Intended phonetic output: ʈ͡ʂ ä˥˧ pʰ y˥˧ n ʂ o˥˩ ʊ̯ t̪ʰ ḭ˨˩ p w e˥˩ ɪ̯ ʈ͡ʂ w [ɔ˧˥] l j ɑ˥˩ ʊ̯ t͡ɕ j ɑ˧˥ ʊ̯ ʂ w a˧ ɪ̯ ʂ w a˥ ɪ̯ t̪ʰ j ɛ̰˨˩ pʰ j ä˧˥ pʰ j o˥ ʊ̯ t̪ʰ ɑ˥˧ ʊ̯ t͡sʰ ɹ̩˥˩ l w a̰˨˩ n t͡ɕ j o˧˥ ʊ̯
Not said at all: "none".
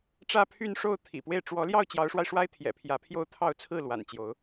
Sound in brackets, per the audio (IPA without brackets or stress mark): ɔ˧˥